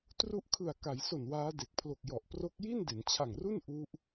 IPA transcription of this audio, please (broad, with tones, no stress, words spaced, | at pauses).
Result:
tru˦˥ʔkʰɯ˨˩a̯ ka˩˦jso˨˩n waː˦˥de˨˩k̚ pʰlo˨˩k̚jɔ˨˩ʔ pro˦˥k̚ ji˥˩nde˩˦nt͡ɕʰa˨˩ŋru˥˩n ʔu˦˥ʔ